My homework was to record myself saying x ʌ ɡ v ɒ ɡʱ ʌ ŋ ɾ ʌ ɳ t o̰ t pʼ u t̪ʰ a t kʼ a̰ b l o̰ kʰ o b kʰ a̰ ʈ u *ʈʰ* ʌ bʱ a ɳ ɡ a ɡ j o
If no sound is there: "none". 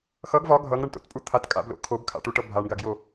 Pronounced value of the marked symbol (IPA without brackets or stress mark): ʈ